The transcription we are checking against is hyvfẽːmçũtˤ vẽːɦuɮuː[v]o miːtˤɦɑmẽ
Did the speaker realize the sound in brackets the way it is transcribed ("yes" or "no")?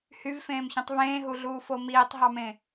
no